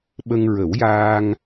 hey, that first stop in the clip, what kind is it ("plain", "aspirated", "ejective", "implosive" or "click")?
implosive